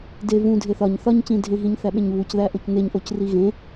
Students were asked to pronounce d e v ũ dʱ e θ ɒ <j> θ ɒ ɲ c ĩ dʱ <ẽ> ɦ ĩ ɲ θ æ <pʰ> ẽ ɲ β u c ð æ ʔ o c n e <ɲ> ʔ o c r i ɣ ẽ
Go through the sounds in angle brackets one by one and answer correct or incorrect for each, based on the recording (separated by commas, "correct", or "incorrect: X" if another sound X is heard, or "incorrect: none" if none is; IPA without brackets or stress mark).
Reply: incorrect: ɲ, correct, incorrect: ɓ, correct